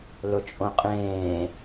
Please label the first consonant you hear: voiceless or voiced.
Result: voiced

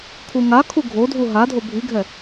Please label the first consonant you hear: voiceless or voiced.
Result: voiceless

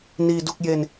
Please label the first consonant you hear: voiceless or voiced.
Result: voiced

